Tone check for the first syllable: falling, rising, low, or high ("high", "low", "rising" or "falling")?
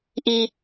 high